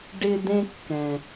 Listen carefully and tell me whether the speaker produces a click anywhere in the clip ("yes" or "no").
no